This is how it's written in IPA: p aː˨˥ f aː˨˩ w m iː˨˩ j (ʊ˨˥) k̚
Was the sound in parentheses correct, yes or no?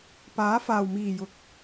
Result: yes